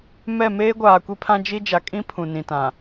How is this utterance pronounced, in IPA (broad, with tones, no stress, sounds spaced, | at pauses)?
m ɛ˦˨ m eː˦ ɡʷ aː˨ kʷ i˦ pʰ ã˦ d͡ʒ i˦ d͡ʒ a˨ kʼ ĩ˦ pʰ ũ˨ n ĩ˨ t ã˨